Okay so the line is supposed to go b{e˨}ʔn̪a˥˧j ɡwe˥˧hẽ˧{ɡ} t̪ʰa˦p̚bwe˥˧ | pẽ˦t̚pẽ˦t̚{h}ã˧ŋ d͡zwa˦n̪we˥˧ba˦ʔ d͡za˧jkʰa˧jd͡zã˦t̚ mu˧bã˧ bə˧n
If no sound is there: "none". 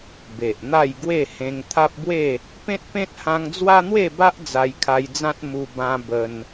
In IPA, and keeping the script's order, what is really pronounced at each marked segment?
e˨, ŋ, h

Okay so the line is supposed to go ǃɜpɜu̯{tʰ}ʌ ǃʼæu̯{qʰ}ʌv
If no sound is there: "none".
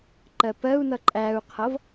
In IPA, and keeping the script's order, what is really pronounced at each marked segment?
n̪, qʰ

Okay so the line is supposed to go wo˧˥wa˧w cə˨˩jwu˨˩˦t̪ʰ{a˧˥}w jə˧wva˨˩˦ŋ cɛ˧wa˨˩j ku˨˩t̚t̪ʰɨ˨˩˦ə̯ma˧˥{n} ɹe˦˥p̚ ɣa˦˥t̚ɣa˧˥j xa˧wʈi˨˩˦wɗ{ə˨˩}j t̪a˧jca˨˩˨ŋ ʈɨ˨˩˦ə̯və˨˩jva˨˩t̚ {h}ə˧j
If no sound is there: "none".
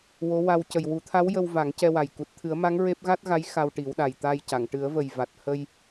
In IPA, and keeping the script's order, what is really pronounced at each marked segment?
a˧˥, ŋ, a˨˩, h

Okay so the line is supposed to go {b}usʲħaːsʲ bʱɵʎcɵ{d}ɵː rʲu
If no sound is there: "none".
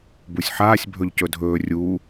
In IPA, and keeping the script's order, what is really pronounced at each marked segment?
b, dʱ

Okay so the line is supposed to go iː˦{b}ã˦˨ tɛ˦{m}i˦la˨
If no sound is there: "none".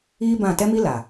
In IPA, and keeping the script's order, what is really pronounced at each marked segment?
b, m

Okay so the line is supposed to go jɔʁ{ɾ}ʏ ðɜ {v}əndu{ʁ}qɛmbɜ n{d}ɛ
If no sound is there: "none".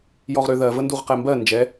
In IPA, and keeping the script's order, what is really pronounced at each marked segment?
ɾ, v, ʁ, d͡ʒ

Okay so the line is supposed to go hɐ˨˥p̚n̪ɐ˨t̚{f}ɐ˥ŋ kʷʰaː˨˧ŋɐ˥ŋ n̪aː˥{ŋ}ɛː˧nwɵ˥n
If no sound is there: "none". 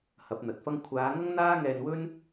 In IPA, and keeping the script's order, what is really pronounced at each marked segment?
f, ŋ

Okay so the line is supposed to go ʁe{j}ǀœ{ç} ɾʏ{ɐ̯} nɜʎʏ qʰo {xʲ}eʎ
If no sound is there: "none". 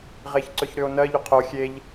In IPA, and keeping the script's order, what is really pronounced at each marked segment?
ç, ç, o̯, xʲ

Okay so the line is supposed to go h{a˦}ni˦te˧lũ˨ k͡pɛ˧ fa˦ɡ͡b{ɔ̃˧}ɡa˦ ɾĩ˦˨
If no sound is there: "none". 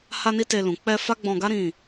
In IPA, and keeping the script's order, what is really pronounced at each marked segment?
a˦, ɔ̃˧

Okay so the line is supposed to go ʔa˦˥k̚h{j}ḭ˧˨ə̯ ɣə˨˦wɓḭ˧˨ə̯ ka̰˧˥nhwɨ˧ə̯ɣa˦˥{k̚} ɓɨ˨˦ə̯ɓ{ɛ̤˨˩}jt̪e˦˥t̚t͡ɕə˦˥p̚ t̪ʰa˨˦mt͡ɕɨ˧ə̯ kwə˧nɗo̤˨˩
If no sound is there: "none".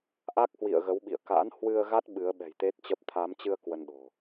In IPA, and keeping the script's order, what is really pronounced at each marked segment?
w, t̚, ɛ̤˨˩

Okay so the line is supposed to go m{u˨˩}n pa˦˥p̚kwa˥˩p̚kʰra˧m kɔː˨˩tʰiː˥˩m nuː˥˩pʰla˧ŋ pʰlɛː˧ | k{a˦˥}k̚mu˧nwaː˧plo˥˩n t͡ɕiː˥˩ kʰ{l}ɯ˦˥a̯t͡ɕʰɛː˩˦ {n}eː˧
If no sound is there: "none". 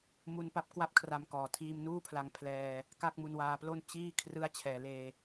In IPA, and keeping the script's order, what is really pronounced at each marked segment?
u˧, a˥˩, r, l

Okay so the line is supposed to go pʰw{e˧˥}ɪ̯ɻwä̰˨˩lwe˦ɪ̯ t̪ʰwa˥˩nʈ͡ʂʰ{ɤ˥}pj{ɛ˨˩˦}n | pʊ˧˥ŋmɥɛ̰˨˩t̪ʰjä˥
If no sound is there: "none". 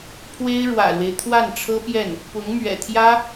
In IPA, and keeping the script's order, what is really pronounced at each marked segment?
e˥, ɤ˥, ɛ˥˩

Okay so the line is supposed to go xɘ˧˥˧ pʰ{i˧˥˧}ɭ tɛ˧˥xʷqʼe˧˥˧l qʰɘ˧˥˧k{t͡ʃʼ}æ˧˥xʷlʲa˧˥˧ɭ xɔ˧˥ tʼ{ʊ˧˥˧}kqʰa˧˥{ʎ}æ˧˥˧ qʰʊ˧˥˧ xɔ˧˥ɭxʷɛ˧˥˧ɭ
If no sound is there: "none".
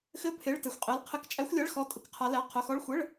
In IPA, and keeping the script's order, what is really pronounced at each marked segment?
e˧˥˧, t͡ʃʼ, ʊ˧˥˧, l

